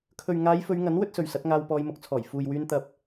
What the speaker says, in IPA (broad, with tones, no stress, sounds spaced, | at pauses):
kʰ ɵ˨ ɥ ŋ aː˨˧ j f ɵ˨˧ ɥ ŋ ɐ˨˥ n w ɵ˥ t̚ s ɵ˨ ɥ s ɐ˨˥ t̚ ŋ aː˧ w p ɔː˧ j m ʊ˨˥ k̚ t͡sʰ ɔː˨˩ j f uː˨ j w yː˧ n t̪ ɐ˨ p̚